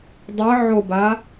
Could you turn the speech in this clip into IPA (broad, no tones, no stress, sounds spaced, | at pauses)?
dˤ ə ʕ o b a